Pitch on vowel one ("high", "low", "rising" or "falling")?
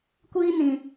high